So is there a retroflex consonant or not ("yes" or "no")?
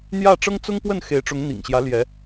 yes